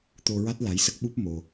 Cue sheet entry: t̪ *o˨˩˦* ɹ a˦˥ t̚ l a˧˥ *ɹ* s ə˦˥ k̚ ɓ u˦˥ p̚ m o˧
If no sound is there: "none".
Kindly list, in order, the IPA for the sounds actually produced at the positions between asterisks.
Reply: o˧, j

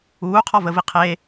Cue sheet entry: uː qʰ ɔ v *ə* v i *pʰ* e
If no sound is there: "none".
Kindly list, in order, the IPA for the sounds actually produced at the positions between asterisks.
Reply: ə, qʰ

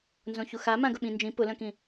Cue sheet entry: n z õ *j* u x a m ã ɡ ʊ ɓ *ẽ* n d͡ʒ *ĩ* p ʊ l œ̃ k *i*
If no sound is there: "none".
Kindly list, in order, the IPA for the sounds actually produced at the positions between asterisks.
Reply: ç, ĩ, ĩ, ĩ

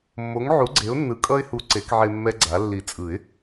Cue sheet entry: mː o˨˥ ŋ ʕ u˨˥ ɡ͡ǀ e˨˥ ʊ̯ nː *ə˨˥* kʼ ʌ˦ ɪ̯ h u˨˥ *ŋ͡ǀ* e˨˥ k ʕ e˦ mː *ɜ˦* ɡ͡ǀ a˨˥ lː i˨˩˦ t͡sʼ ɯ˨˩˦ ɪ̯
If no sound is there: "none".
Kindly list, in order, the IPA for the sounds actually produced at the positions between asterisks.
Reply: ɯ˨˥, ǀ, ɛ˦

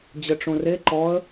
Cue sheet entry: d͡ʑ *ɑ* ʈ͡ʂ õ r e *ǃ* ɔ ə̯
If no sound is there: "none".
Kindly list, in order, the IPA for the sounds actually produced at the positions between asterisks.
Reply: ə, ǃ

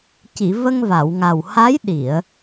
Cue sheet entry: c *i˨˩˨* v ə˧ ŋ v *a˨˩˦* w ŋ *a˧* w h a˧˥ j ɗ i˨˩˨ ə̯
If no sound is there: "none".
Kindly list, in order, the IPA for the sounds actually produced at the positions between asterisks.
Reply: i˨˩˨, a˨˩˨, a˨˩

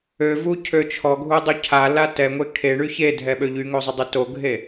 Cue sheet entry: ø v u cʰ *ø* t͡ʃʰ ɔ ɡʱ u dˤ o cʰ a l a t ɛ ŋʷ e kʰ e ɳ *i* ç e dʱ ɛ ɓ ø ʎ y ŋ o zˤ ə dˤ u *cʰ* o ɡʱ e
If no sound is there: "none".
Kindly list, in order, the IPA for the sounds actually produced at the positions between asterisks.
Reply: ø, y, t

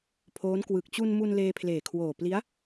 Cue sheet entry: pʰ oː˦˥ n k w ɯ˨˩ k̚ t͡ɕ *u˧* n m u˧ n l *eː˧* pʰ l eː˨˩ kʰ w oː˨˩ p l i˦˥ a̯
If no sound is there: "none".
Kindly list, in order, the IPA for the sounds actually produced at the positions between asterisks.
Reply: u˧, eː˧

